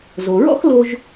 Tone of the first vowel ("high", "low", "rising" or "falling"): low